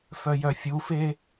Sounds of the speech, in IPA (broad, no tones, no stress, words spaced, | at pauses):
fœjœfʲufeː